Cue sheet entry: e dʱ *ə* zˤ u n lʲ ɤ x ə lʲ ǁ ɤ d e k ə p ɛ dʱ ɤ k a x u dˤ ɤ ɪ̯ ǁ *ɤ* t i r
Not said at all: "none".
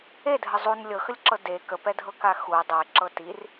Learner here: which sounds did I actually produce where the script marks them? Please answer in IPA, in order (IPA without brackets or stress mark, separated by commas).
ə, ɤ